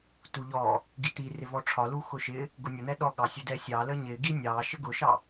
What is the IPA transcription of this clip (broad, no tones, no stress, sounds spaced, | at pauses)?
t u ʎ ɔ | ɡ i t̪ i r ɪ v ɔ ʈ͡ʂʰ ɒ l u x ʊ ʃ ɪ | ɡ ʊ nʲ ʊ n̪ ɛ ɗ ɔ ɠ ɑ sʲ ʊ d ɛ sʲ ɑ l ə ɲ ɪ ɡ i nʲ ɑ ʃ ə ɡ ʊ ʃ ɑ